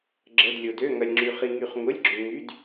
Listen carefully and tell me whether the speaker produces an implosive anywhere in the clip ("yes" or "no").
no